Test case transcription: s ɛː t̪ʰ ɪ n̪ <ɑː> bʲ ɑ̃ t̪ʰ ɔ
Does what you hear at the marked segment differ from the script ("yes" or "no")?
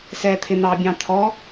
no